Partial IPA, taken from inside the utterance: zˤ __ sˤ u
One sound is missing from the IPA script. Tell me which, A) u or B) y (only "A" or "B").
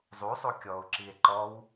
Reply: A